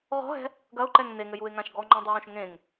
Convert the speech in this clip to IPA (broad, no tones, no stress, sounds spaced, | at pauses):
ʁ ɔ̤ ɦ ɛ̤ | ɡ ɐ ʊ̯ ǃ ɛ ŋ n e ŋ ɘ j u ɪ̯ ŋ ã ʃ ɡ ɔ ŋ͡ǃ ɔ̃ dˤ u w õ ʃ ŋ ẽ ŋ